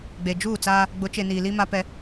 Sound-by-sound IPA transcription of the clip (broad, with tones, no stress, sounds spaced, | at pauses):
ɡ͡b e˨ d͡ʒ uː˦˨ t͡s aː˦ | ɡ͡b ʊ˨˦ t͡ʃ e˨ n iː˨ l i˦ m a˦ p ɛ˦